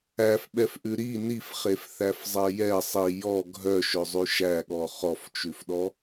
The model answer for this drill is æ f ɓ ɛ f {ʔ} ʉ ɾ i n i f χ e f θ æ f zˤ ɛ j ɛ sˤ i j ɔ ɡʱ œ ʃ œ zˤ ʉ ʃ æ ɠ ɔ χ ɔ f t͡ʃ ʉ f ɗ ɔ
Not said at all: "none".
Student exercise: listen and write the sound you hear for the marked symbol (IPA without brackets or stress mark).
ʔ